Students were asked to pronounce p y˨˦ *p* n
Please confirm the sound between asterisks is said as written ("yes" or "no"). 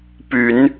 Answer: no